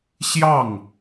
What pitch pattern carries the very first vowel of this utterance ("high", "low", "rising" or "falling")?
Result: falling